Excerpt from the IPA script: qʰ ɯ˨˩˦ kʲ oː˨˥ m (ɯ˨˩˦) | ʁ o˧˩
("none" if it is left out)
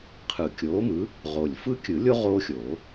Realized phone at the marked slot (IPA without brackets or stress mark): ɯ˨˥